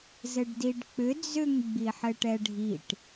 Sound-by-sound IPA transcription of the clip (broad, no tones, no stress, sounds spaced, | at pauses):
z ɘ ɖ d i ɖ k͡p ʏ d͡z ʏ ŋ ɡ͡b i ħ ɘ ʈ ɛ ɖʱ i ʈ